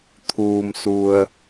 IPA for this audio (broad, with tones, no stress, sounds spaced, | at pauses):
t̪ʰ uː˩ m s u˩ ə̯